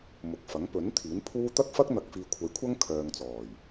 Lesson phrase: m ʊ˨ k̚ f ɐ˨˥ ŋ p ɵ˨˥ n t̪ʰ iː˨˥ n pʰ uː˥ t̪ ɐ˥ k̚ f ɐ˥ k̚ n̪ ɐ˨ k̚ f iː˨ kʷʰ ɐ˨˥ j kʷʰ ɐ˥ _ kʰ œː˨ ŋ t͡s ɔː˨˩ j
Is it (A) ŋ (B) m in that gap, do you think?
A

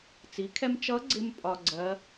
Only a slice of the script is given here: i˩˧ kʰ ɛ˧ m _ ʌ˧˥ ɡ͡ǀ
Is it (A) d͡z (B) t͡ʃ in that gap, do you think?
B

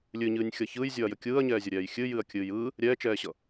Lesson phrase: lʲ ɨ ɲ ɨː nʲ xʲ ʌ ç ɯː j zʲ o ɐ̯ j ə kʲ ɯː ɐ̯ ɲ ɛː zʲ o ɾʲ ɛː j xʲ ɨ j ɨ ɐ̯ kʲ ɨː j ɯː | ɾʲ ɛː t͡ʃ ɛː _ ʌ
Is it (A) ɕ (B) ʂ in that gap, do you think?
A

